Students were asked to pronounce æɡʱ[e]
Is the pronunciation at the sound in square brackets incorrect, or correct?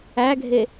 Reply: correct